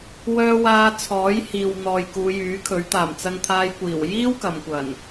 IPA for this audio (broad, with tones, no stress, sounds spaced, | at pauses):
w œː˧ w aː˧ t͡sʰ ɔː˨˥ j h iː˨ w n̪ ɔː˨ j k uː˨˧ j yː˨˥ kʰ ɵ˨˥ ɥ t̪ aː˨˩ m t͡s ɐ˧ ŋ t̪ʰ aː˧ j kʷ iː˨˩ w j iː˥ w k ɐ˨ m kʷ ɐ˨˩ n